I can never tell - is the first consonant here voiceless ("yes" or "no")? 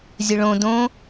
no